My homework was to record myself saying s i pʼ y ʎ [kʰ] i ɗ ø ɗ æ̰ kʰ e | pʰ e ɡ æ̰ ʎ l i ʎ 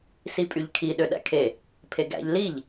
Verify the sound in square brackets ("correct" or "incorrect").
correct